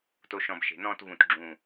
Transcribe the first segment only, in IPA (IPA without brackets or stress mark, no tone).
t